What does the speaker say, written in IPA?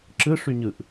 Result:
ǁ ɯ ʂ y ɲ ɯ ʔ

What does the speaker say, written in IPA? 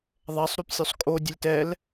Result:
ðˤ ɛ sˤ ɾ y p sʲ o sˤ kʼ o dʲ ə lʲ t ɛ l

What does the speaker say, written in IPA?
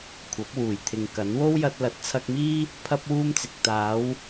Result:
kʷʰ ɐ˨˥ p̚ w uː˨˩ j t̪ʰ ɪ˨ ŋ k ɐ˨˥ n w o˥ w j ɐ˧ t̚ l ɐ˨˥ t̚ t͡sʰ ɐ˧ k̚ m iː˥ | pʰ ɐ˥ p̚ w uː˥ m t͡s ɪ˨ k̚ t̪ aː˨˧ w

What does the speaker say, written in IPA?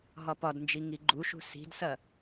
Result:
ɦ ɒ p ɒ d n d͡ʒ i ŋ i ɡ͡ǃ u ʃ ṳ s i̤ d s ɐ

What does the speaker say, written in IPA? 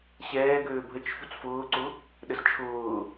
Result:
ɕ ɛː ɡ øː bʱ ə t͡ʃ ç u t͡s f ʊː ǀ ʊ | ɗ ə z t͡ʃʰ ʊː

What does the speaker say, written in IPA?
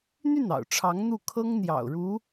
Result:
n̪ y˥˩ n ɑ̰˨˩ ʊ̯ ʈ͡ʂʰ ɑ˧˥ ŋ n̪ u˥˩ kʰ ɤ˥ ŋ n̪ j ɑ̰˨˩ ʊ̯ ɻ u˧˥

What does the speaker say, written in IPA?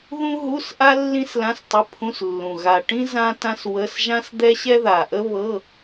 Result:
ð ũ˥ ɦ u˧˥˧ s ʔ a˥ lː ĩ˥ s l ã˧˥˧ s tˤ ə˧˥˧ pʰ ũ˧˥˧ s lː ũ˨˩ ɣ a˨˩ ʈ ĩ˥ z ã˥ t ã˥ s w ə˧˥˧ s ʒ ã˥ s d̪ ɛ˥ ɕ ɛ˥ ð a˨˩ ʔ ə˥ β ɤ˧˥˧

